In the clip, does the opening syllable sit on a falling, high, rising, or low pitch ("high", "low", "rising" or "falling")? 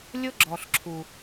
high